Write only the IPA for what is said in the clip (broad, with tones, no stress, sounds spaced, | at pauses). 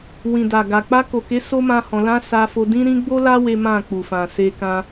w ĩ˨ d a˨ ɡ a˨ k͡p a˧ k o˨ k e˨˦ s o˦ m ã˦ h ɔ̃˧ l ã˦ s a˧ f o˧ d ĩ˦ ɾ ĩ˦ ɡ͡b o˦ l a˦ w e˦ m ã˦˨ k͡p u˨ f ã˨ s e˧ k ã˦